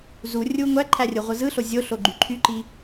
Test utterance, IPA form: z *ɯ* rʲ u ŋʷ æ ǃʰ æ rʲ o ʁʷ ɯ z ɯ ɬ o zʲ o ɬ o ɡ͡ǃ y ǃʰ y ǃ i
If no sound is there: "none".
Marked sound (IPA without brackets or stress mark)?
u